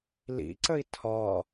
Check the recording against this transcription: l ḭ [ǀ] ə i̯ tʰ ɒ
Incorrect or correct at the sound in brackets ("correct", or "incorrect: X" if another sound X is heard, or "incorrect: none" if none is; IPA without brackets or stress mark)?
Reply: correct